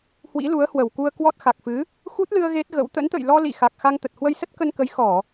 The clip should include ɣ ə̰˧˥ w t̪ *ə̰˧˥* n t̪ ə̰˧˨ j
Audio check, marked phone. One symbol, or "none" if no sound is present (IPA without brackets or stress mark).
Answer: ə̰˧˥